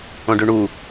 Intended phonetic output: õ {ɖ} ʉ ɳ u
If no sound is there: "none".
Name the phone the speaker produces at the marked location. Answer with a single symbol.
ɖ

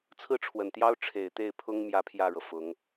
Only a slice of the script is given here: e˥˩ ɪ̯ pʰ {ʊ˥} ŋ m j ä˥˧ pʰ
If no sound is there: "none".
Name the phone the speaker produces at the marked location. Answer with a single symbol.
ʊ˥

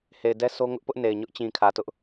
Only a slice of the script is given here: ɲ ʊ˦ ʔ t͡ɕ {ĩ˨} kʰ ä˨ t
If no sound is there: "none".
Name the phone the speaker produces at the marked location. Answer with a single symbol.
ĩ˨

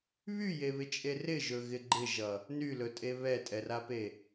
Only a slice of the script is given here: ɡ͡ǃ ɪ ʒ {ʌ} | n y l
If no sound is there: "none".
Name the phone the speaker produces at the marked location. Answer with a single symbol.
ʌ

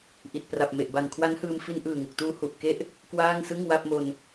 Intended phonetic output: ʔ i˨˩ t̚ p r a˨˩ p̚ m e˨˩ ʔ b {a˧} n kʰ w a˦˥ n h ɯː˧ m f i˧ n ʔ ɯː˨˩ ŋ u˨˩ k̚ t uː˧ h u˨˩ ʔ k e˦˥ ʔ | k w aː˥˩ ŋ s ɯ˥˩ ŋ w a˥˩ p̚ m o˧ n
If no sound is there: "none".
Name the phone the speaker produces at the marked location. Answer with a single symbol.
a˨˩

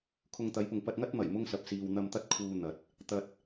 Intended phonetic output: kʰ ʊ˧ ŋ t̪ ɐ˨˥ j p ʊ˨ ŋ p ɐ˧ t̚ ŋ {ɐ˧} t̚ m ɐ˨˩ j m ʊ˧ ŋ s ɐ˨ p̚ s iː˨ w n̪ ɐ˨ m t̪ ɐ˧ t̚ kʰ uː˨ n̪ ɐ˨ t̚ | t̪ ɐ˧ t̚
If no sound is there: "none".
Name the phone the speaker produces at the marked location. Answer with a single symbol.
ɐ˥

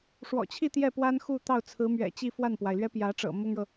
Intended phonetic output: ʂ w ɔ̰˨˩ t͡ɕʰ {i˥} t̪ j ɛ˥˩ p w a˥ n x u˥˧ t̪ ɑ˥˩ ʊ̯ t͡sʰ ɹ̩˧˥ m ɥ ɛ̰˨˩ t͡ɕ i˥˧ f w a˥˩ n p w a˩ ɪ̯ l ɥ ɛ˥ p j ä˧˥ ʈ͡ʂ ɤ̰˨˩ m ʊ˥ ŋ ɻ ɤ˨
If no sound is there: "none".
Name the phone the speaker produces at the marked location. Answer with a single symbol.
i˥˧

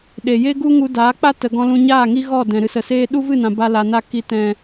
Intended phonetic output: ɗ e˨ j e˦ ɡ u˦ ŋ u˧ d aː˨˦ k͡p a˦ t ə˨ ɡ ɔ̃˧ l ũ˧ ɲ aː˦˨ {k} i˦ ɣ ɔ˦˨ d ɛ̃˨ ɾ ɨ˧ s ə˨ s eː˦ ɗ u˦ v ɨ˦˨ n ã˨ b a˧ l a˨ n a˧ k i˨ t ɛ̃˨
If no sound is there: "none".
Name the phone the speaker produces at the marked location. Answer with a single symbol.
ŋ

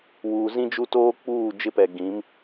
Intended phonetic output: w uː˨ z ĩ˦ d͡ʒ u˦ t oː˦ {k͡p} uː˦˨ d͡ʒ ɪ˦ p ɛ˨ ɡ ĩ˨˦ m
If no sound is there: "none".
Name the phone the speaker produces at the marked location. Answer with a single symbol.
k͡p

